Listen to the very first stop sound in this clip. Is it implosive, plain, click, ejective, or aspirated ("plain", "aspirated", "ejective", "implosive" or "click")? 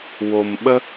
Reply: implosive